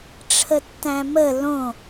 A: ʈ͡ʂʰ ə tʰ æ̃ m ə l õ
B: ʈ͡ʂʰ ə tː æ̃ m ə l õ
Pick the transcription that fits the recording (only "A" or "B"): B